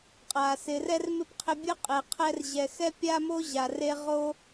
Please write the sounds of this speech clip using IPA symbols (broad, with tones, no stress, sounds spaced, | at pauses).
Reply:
qʼ a˩ s ɪ˨ r ɛ˥ r m ɪ˥ p qʰ ɪ˦ bʲ ʊ˥ qʼ e˨ qʰ ɛ˦ r ʑ ɛ˨ x ɛ˥ pʲ a˥ m o˥ ʑ a˨ r e˦ ʁ o˥